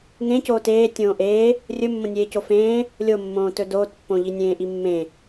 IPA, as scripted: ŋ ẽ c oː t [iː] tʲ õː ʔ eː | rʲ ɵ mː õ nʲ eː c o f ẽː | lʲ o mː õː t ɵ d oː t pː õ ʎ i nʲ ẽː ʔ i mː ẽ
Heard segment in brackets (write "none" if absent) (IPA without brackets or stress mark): eː